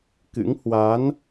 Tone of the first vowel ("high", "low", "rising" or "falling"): rising